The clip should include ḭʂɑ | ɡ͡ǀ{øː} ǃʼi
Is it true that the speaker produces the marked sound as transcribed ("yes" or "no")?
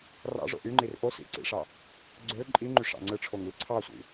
no